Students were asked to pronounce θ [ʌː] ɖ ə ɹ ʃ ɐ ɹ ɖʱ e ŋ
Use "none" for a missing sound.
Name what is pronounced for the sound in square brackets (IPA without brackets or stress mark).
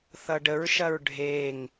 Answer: ʌ